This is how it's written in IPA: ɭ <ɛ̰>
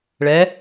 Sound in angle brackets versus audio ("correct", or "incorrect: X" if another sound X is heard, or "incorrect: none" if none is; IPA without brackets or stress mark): incorrect: ɛ